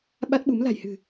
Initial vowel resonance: oral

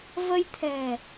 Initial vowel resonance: oral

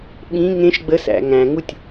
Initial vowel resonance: nasal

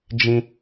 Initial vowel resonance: nasal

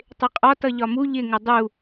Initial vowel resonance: oral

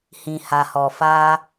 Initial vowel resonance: nasal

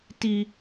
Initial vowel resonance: oral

